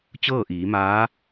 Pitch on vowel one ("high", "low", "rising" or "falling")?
falling